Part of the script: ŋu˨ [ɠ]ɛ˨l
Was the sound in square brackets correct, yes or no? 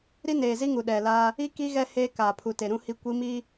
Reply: no